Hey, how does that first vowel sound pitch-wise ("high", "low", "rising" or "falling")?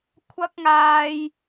high